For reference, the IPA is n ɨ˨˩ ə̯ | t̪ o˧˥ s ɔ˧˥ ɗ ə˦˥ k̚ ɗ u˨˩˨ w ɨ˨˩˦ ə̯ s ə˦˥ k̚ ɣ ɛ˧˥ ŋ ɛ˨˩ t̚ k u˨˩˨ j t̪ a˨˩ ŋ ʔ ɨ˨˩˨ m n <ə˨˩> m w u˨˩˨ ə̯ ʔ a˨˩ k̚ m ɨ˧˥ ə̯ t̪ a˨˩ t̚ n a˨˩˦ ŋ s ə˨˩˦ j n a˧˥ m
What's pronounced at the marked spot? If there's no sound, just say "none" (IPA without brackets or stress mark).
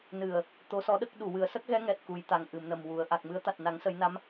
ə˨˩